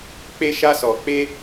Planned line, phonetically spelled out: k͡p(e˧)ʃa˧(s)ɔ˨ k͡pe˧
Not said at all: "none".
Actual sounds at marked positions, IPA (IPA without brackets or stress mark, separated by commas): e˧, s